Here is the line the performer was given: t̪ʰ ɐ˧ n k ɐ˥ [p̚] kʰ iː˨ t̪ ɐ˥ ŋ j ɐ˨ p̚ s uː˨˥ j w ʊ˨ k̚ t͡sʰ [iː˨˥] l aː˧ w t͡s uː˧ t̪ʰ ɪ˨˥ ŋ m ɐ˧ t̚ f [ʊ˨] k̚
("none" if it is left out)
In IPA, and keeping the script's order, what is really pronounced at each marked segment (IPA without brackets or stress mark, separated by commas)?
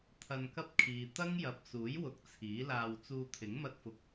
p̚, iː˨˥, ʊ˨